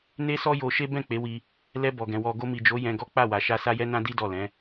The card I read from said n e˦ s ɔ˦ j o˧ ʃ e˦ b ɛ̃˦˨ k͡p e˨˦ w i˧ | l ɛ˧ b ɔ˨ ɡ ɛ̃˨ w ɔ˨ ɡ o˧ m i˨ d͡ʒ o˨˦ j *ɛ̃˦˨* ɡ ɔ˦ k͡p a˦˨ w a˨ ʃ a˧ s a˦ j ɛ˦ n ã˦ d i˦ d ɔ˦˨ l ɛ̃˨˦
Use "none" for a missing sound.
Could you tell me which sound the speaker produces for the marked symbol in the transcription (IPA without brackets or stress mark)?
ɛ̃˧